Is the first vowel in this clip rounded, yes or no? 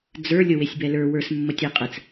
no